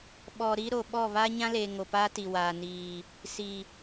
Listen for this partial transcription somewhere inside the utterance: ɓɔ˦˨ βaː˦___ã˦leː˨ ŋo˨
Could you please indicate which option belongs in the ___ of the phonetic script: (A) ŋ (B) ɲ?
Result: B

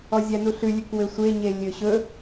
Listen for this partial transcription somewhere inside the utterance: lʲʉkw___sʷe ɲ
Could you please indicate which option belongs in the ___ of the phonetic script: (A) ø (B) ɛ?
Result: A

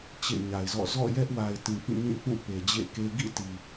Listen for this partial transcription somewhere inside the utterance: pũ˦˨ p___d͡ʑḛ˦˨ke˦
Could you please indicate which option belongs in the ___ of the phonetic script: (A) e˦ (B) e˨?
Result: B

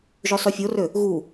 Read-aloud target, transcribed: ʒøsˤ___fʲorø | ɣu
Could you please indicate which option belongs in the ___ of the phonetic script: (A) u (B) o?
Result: A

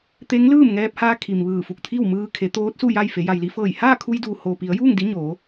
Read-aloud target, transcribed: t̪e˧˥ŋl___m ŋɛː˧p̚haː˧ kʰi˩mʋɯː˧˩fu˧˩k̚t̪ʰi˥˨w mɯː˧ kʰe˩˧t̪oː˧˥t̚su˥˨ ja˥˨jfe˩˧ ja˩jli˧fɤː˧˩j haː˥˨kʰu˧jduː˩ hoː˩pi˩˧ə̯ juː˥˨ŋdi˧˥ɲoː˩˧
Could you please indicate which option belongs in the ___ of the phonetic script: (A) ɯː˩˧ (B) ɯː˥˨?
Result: B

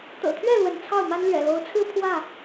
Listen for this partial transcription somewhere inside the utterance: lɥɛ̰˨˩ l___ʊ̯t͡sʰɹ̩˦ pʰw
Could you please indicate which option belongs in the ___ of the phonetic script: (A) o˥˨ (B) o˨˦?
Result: B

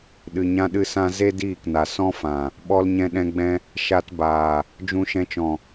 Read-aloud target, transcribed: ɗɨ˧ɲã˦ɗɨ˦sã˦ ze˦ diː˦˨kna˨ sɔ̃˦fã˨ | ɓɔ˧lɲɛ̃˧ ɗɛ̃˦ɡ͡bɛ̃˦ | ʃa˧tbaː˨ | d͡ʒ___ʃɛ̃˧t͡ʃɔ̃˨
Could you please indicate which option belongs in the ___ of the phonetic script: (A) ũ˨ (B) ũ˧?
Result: B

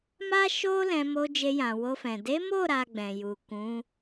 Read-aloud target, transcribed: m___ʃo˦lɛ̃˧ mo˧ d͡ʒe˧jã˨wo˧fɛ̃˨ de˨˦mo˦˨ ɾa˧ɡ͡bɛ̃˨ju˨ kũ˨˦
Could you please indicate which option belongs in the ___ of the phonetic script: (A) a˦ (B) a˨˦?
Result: A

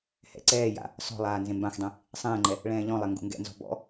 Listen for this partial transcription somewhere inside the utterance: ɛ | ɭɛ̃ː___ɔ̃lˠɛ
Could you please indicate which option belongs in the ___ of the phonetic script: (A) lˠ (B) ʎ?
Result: B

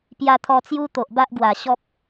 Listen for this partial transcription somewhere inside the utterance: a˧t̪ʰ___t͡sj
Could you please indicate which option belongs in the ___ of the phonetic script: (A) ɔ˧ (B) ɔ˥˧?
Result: A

